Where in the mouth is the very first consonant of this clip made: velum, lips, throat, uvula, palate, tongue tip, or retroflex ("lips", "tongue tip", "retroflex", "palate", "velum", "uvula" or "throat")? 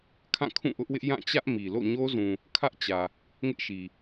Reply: velum